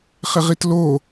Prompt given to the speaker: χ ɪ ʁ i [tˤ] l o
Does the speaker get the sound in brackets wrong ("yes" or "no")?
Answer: yes